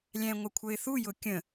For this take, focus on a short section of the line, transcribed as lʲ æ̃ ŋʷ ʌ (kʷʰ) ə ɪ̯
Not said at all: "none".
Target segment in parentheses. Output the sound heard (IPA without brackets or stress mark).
kʷʰ